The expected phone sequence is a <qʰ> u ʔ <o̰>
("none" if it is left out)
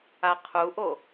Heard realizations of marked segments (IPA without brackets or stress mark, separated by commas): qʰ, o